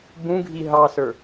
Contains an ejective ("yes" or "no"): no